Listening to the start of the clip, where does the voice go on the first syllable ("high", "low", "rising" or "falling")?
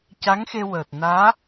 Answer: rising